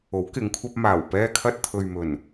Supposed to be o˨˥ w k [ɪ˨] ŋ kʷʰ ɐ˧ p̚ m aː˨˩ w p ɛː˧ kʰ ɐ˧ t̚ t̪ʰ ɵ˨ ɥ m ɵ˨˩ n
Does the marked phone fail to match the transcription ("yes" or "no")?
yes